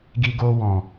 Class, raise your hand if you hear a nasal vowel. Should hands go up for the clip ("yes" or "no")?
yes